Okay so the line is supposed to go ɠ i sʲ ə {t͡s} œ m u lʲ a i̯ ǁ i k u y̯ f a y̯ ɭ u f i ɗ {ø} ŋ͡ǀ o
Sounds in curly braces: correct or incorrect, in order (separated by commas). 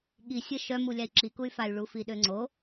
incorrect, correct